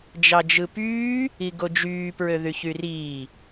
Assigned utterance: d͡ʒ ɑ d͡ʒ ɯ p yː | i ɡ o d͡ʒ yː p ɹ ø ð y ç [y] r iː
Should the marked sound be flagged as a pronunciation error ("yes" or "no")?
no